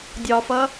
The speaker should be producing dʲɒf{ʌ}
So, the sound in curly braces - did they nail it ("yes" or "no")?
yes